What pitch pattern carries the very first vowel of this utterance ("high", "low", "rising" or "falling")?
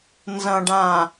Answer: low